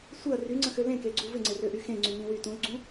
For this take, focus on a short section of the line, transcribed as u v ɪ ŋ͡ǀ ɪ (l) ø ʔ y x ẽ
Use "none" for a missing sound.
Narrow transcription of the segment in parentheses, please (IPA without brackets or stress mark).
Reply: r